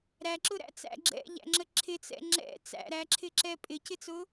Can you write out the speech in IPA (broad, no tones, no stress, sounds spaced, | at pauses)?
ɾ æ ǁ ʊ ɾ æ̰ t͡s æ̰ ɡ͡ǁ ɛ̰ ʎ æ̰ ŋ͡ǁ ə ǁʰ ɪ t͡s ɛ̰ ŋ͡ǁ ɛ̰ t͡s æ̰ ɾ æ ǁʰ ɪ ǁ ɛ pʼ ɪ c ɪ t͡s ʊ